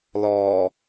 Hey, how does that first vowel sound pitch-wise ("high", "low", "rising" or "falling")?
low